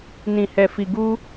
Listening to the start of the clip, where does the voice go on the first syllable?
low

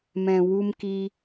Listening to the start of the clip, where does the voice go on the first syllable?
low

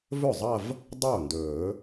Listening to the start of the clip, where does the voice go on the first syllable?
falling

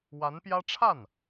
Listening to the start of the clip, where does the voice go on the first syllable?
rising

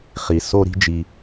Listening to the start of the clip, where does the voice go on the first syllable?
low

